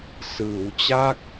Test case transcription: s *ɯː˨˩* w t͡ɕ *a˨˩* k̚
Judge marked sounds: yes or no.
no, no

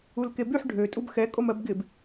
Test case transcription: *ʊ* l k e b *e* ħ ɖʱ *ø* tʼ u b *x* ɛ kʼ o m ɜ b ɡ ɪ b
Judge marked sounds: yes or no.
no, no, yes, yes

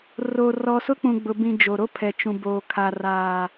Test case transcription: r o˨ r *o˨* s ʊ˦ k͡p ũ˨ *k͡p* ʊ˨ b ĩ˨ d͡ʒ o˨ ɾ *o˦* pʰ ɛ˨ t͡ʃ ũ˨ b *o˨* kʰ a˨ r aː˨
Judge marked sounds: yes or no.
no, no, yes, no

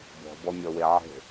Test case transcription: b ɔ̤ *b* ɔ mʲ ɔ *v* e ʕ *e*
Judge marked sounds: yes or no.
yes, no, no

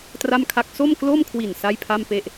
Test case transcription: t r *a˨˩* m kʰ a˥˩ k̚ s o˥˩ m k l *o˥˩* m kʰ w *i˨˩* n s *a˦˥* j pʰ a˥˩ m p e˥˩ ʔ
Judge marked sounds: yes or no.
no, yes, yes, no

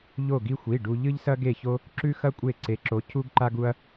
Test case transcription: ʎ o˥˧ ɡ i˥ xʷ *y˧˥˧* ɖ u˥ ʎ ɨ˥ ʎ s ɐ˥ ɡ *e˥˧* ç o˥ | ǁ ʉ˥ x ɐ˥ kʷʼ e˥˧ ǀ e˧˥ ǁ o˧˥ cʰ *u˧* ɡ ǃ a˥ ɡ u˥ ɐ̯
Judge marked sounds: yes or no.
no, yes, no

